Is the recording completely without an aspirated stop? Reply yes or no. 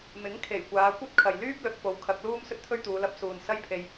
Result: no